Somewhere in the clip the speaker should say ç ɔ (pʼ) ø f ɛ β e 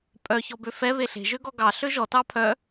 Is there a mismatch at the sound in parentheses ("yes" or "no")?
yes